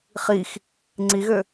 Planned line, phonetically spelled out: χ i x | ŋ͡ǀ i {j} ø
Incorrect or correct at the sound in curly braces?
incorrect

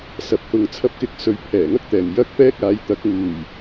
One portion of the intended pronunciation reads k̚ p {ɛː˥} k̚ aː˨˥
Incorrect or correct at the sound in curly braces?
correct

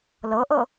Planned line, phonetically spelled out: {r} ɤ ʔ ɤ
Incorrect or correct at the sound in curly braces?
incorrect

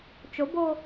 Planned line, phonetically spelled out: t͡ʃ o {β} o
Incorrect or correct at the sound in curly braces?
incorrect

